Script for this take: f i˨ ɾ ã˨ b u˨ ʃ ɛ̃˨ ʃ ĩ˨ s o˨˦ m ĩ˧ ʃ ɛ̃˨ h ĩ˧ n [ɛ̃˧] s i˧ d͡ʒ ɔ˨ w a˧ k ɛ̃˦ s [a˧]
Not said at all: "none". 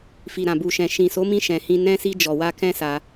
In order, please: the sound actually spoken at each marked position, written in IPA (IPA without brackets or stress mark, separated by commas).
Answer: ɛ̃˧, a˧